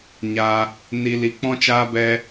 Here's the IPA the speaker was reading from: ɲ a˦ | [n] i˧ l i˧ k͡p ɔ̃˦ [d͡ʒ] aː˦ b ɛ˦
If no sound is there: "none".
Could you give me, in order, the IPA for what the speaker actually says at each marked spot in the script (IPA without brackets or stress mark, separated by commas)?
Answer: n, t͡ʃ